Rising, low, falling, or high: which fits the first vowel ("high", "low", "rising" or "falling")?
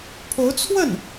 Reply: rising